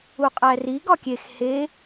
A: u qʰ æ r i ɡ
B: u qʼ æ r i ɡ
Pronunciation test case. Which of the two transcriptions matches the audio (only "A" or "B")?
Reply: B